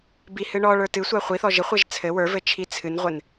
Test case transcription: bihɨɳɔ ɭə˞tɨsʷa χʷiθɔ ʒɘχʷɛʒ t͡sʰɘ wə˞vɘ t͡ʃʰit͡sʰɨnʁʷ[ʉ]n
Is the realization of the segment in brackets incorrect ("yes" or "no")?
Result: yes